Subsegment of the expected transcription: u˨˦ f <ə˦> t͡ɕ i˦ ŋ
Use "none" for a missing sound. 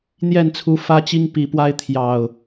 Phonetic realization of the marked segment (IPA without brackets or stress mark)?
ä˦